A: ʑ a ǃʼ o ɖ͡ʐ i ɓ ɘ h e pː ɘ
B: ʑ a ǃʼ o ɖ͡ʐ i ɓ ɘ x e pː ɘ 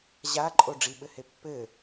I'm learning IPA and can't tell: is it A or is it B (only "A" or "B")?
A